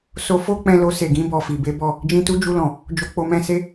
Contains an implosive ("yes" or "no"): no